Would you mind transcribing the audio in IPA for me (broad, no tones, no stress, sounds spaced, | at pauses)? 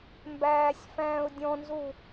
m b æː sʲ f æ̃ː ʊ̯ dʲ ɔ̃ n z u